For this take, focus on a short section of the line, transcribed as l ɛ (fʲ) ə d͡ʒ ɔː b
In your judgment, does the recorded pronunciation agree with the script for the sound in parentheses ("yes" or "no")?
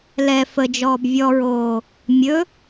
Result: no